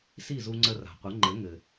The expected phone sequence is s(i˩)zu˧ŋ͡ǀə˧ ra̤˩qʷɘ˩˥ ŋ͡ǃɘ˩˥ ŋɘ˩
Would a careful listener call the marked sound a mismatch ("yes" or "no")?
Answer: yes